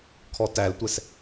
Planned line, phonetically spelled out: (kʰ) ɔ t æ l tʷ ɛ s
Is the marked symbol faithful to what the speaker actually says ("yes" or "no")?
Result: yes